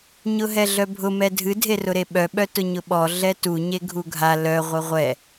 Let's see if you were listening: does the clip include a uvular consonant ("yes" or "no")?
yes